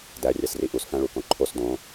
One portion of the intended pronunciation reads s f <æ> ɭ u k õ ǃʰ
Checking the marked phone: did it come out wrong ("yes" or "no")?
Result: yes